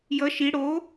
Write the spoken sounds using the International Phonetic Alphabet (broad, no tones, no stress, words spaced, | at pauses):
jʌ ʃi ɽo